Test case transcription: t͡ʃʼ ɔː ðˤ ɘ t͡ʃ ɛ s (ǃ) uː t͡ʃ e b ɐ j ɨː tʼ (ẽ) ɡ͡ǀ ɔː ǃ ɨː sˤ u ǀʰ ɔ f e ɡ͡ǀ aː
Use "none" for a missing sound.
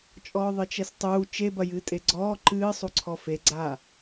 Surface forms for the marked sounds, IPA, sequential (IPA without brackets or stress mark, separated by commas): tˤ, e